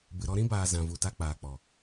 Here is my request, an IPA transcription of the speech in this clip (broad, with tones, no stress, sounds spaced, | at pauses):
b ɨ˨ ɾ ɔ˧ ɾ ĩ˦ b aː˨ z ã˨ v u˨ t a˧ k͡p aː˨ k͡p ɔ˨